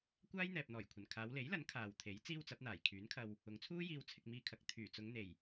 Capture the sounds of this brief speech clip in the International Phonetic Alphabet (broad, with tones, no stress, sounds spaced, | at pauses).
kʷ aː˥ j n̪ ɛː˨ p̚ n̪ ɔː˨˩ j kʷʰ ɐ˨˩ n kʰ aː˨˧ w l e˨˥ j l ɐ˨˥ n kʰ aː˨ w t̪ʰ e˨˥ j t͡s iː˥ w t͡s ɐ˨˥ p̚ n̪ aː˨˩ j kʰ yː˨˥ n kʰ ɐ˧ w | ʊ˨˧ ŋ t͡sʰ uː˥ j iː˧ w t͡sʰ ɪ˧ k̚ m iː˧ kʰ ɐ˨ k̚ t̪ʰ yː˨˩ t͡s ʊ˨˧ ŋ n̪ e˨˩ j